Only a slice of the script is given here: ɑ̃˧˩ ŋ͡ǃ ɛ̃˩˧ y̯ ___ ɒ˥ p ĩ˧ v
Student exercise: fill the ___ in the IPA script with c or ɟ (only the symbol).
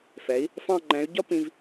ɟ